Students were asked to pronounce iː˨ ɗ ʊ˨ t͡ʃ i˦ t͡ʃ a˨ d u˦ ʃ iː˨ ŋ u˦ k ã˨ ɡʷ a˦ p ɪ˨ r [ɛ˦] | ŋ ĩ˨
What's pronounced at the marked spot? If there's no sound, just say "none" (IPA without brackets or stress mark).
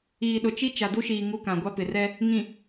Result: ɛ˦